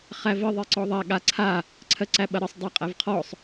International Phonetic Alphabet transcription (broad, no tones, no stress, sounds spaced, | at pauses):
χ æ v ə ðˤ i ǀ ɔ ðˤ a ɠ a ǀʰ a | ǀʰ ɜ ǀ æ ɓ ɐ ɾ ə sˤ dˤ æ qʼ æ v qʰ ɔ sˤ